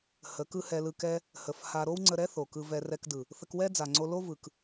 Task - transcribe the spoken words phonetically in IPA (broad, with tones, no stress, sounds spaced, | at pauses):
h ə˨˦ k ɯ˦ h ɛ˧ l ɯ˧ k ɛ˧ | h ə˨ f h a˧ ɾ o˦ w ŋ͡ǀ ə˧ ɾ ɛ˦ θ o˨ k ɯ˧ v ɛ˧ r ɛ˧ k d ɯ˨ | θ ə˧ k w ɛ˦ d͡z a˨ ŋ͡ǀ o˧ l o˦ v ɯ˨ k